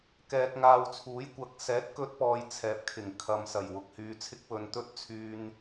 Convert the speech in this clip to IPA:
k ɛː˧ k̚ ŋ aː˧ w t͡sʰ uː˨˥ j kʷ ɐ˨˥ k̚ s ɛː˨˥ t̚ k ɵ˧ t̚ p ɔː˨ j t͡sʰ ɛː˨ p̚ kʰ ɪ˨˩ ŋ kʰ ɐ˨ m s ɐ˨˩ j w ʊ˨ k̚ h yː˨ t͡sʰ ɪ˧ k̚ w ɵ˨ n t̪ ɵ˥ t̚ t͡sʰ yː˧ n

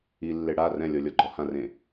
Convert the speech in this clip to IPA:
i lː e ɽ a r ɛ̃ lʲ ɔ lʲ ɔ ɡ͡ǃ ɔ h ã r ẽ

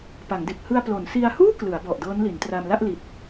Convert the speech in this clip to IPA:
p a˩˦ ŋ d e˨˩ k̚ h ɯ˧ a̯ p l o˩˦ n s i˧ a̯ h uː˥˩ k l ɯ˩˦ a̯ b ɔ˨˩ ʔ d ɤː˦˥ n l i˩˦ n t r a˧ m l a˥˩ ʔ l i˨˩ t̚

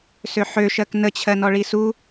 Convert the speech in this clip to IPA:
s ø ħ ø ʃ ɜ k n ə t͡ɕʰ ɜ n ɔ ɭ i s u

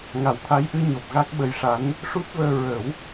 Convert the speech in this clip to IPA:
ŋ a˨˩˦ w t̪ʰ a˧˥ j ʔ ɨ˧ ɲ o˨˩ p̚ ɣ a˦˥ k̚ ɓ ə˧˥ j ʂ a˧˥ n | ʂ u˦˥ t̚ v əː˧ ɹ ə˨˩˦ w

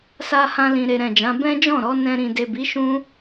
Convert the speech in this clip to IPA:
s a˦ h ã˦ l ĩ˧ ɾ e˧ ɾ ɛ̃˨ d͡ʒ ã˨˦ b ɛ̃˦ d͡ʒ ɔ̃˦˨ ɾ ɔ˨˦ n ɛ̃˧ ɾ ĩ˨ d e˨ b i˨˦ ʃ ũ˦

